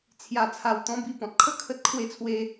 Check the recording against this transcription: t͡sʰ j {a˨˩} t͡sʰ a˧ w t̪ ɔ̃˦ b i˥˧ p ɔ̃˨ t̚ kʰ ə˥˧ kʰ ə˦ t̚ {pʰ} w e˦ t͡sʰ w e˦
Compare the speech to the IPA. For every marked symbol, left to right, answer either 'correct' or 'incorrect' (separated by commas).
incorrect, incorrect